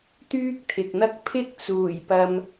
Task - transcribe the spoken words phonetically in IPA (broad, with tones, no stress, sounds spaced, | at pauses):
t̪ yː˥ k̚ t̪ʰ ɪ˨ k̚ n̪ ɐ˥ k̚ pʰ ɪ˥ k̚ t͡s uː˨˩ j p ɐ˨ m